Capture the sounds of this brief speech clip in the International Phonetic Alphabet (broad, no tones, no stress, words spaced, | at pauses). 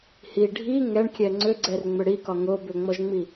hi ɖʱi ŋɛɳkʲɛ ŋ͡ǀʏɡ͡ǀɛrŋ͡mʏ ɽikɒ ŋo bʏŋ͡mɔʒŋ͡mi